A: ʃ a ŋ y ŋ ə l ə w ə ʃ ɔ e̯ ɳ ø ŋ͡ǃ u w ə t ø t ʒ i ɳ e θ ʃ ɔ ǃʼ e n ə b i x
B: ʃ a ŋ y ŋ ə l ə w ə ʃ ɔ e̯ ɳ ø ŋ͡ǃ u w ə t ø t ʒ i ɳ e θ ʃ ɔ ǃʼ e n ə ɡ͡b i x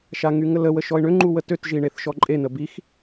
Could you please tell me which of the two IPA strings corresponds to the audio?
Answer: A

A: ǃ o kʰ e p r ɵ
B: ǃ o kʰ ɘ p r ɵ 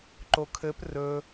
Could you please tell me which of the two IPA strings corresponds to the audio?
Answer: B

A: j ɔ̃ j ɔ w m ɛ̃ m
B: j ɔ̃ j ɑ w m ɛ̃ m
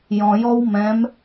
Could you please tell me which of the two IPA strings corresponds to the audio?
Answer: A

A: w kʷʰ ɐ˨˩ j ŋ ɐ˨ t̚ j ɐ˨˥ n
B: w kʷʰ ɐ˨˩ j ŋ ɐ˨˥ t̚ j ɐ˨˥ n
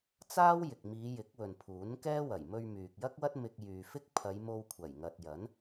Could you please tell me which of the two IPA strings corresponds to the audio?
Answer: A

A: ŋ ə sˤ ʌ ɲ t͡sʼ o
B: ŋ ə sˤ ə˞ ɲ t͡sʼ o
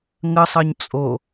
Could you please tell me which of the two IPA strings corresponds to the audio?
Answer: A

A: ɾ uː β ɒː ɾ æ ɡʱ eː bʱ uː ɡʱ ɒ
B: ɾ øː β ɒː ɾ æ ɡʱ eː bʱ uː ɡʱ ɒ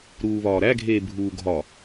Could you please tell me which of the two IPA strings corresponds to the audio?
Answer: A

